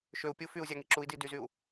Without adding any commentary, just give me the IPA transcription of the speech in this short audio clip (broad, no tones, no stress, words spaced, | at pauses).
ʃøu̯pʲu fyu̯zʲɑŋi ǁui̯di dyzyu̯